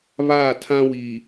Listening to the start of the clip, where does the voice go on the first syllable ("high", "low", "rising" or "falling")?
falling